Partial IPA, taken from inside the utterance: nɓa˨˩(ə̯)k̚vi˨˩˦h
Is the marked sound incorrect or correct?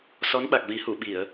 incorrect: none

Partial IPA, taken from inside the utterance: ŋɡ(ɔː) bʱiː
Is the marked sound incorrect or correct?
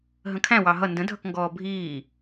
correct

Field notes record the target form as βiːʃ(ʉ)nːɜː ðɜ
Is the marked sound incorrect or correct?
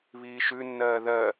correct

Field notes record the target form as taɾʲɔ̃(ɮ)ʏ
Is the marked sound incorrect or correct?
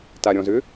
incorrect: z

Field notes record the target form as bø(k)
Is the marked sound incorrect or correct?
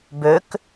correct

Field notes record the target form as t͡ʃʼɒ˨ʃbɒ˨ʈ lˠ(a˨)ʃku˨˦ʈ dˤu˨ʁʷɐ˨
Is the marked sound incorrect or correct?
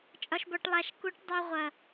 correct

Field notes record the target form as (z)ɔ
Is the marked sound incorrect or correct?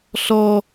incorrect: ɬ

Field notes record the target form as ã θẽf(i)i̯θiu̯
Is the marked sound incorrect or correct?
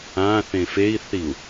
incorrect: e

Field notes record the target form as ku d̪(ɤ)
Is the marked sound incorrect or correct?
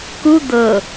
correct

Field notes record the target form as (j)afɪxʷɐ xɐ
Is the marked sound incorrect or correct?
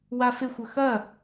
incorrect: w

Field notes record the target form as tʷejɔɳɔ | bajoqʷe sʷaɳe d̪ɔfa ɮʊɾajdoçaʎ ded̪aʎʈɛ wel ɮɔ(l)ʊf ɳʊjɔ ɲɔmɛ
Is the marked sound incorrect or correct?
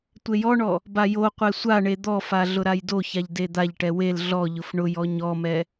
incorrect: ʎ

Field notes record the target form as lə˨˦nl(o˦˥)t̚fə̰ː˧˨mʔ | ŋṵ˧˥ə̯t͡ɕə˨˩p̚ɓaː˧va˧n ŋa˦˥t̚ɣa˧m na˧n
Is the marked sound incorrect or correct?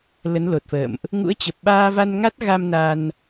incorrect: o˨˩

